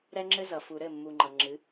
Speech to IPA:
ɾ ɛ˦ ŋ͡ǁ ɘ˦ z ʌ˨ f u˨ ɾ ɘ˦˨ mː u˨ ŋ͡ǃ ʌ˨ ŋ͡ǁ ɨ˨˦

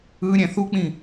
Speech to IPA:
ɯ ɾʲ ɛ̃ θ u k͡p ĩ

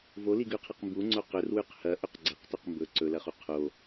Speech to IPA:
v o l i ɡ ʉ qʰ ɐ q m b u ŋ͡ǀ o q ɵ r w ʉ q h ɐ ʔ ɵ q ɡ͡ǀ ɐ q t ɵ q m b ɵ ǀ ɵ l ɐ χ u qʰ o

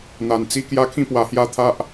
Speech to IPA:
n̪ a˨˩ n t͡s i˧ k j a˦ kʰ ĩ˦ p w a˨˩ h j a˥˧ t̪ʰ a˦ ʔ

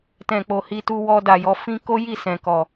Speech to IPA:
t ɛ̃˨ k͡p o˨ h i˧ t u˧ w ɔ˧ d a˨ j ɔ˨˦ f ĩ˦ k o˦ j i˦˨ s ɛ̃˨ k ɔ˨

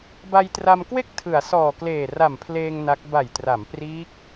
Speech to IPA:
b a˧ j t r a˧ m k w e˥˩ k̚ tʰ ɯ˩˦ a̯ s ɔː˨˩ k l eː˨˩ r a˨˩ m pʰ l eː˧ ŋ n a˦˥ k̚ b a˨˩ j t r a˩˦ m p r iː˦˥ k̚

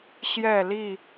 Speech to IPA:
ɕ j ɛ˥˨ l i˥˨

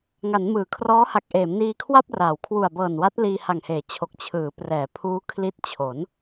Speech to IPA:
ŋ a˩˦ n m ɯː˩˦ kʰ r ɔː˦˥ h a˨˩ k̚ ʔ eː˩˦ m n iː˧ kʰ w a˥˩ p̚ r aː˩˦ w kʰ w u˨˩ a̯ b ɤː˨˩ n w a˦˥ t̚ l iː˧ h a˨˩ ŋ h eː˩˦ t͡ɕʰ o˨˩ k̚ t͡ɕʰ ɯː˩˦ p r ɛː˩˦ pʰ uː˦˥ kʰ l i˦˥ t̚ t͡ɕʰ o˩˦ n

